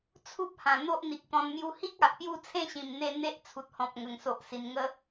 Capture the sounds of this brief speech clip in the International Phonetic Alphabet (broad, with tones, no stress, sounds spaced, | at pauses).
t͡sʰ u˦ p̚ h ã˨˩ n̪ o˦ ʔ n̪ i˨ k̚ t̪ ɔ̃˧ n m j u˧ h i˦ k̚ a˨ ʔ p j u˥˧ t͡sʰ ẽ˥˧ ɕ ĩ˨˩ m n̪ e˧ n̪ e˦ ʔ t͡sʰ u˨ t̚ h ɔ̃˨ p̚ ŋ ə˨˩ ŋ s o˨ ʔ s i˨˩ n ŋ ə˦